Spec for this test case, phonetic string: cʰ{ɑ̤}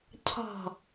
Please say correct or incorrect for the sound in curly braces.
correct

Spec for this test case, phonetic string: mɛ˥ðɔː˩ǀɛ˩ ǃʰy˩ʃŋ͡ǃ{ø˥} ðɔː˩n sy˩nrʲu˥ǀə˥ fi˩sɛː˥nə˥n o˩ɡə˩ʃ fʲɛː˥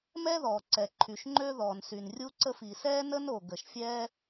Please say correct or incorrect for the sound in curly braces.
correct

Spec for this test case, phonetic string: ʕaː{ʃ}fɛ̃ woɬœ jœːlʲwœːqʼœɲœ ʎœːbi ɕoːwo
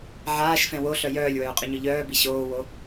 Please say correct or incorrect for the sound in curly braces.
correct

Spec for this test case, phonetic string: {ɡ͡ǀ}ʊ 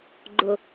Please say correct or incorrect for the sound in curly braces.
incorrect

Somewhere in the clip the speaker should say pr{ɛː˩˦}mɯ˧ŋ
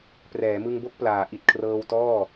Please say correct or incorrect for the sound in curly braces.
correct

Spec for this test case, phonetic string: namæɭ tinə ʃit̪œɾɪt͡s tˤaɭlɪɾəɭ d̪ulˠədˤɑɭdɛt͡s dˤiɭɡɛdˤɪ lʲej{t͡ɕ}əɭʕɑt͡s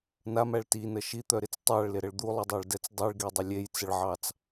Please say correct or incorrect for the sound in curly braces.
incorrect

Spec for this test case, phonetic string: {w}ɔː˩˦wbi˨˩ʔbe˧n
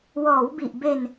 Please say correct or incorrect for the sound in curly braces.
correct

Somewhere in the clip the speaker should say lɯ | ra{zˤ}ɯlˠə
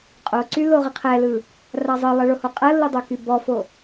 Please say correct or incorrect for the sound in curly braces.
correct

